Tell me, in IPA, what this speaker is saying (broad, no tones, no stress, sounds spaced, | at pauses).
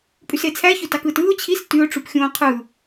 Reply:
pʼ y s e t͡sʰ æ ç ø t ɑ k ɯː t ɯː ʊ̯ t͡ɕʰ i s t y ʊ̯ ʈ͡ʂ u p xʲ õː qʰ ɯ